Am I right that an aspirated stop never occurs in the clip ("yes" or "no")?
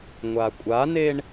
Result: yes